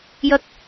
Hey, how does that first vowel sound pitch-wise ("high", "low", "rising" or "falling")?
high